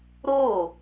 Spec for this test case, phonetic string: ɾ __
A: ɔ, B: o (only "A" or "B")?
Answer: B